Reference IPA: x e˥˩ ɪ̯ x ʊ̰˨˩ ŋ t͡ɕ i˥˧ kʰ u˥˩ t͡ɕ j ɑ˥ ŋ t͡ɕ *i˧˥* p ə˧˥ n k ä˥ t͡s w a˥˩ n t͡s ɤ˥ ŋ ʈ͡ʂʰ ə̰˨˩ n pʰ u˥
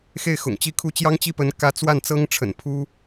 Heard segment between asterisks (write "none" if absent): i˥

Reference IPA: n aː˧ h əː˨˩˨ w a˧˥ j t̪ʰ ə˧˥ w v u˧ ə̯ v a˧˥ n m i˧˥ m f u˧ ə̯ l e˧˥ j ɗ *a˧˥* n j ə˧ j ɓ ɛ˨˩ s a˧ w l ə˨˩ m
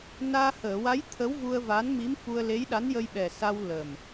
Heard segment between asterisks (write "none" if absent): a˧˥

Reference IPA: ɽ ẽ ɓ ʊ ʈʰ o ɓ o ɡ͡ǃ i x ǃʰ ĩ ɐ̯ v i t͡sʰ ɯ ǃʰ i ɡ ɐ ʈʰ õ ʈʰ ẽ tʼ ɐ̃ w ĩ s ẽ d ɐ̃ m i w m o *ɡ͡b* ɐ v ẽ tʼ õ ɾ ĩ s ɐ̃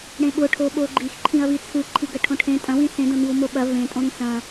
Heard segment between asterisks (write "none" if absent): ɓ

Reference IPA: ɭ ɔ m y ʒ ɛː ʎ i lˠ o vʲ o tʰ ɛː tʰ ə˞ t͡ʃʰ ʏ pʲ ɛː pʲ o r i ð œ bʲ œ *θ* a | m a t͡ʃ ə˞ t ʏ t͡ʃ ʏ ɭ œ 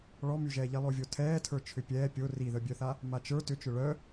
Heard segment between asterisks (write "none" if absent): θ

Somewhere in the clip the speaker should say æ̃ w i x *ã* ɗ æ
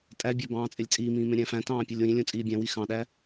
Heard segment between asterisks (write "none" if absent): ɑ̃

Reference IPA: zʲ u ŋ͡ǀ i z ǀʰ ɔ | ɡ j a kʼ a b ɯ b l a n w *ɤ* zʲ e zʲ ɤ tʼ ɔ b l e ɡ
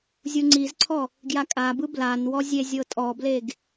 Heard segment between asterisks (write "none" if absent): ɔ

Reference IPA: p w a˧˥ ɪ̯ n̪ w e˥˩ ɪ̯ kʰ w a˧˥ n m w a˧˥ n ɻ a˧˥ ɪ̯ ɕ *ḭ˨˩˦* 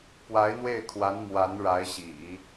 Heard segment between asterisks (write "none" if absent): ḭ˨˩˦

